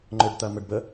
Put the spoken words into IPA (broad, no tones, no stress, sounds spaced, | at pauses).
ŋ͡ǃ ʏ ɖ t̪ ɐ m ə ɖ b ə